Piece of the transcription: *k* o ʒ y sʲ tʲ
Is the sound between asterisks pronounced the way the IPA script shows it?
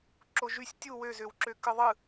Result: no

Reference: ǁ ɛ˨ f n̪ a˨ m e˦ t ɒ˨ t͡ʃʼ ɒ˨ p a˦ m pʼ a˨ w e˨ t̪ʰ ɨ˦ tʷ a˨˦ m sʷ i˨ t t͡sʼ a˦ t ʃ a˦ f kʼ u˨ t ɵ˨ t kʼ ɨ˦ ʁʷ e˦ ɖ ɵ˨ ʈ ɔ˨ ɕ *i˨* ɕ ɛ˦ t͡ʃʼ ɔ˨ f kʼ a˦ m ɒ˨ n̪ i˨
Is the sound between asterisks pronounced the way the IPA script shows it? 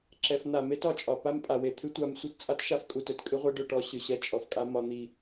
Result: no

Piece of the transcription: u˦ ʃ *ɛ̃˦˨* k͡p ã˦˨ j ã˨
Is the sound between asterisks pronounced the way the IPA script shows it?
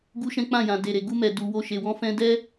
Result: no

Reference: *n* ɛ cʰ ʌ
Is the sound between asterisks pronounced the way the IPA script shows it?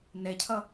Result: yes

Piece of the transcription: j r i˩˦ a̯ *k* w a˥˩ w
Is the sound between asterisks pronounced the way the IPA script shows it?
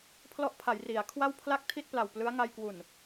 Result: no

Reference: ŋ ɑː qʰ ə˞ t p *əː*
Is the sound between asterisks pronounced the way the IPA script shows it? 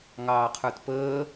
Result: yes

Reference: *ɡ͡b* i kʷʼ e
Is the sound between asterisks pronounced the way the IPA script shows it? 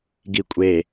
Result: no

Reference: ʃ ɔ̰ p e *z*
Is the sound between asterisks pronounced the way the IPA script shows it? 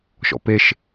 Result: no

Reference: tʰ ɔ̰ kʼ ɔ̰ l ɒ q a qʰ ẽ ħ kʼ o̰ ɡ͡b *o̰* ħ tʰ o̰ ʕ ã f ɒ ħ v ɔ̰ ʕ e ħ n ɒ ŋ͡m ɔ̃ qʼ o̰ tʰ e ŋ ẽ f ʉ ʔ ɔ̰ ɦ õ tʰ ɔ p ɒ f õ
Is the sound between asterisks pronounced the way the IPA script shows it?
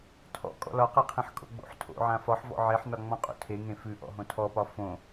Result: yes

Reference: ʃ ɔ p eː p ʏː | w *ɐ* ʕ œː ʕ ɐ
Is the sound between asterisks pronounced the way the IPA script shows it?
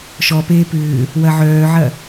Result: yes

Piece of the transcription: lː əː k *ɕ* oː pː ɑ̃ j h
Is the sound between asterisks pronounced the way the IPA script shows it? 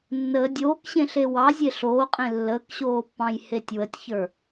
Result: yes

